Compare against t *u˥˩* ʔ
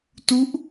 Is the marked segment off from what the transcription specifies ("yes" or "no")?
yes